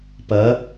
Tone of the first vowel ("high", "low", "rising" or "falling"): rising